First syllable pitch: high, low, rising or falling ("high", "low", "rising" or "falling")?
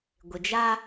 low